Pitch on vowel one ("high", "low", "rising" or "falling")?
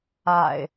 low